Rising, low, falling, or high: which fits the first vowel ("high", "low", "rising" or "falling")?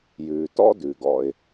low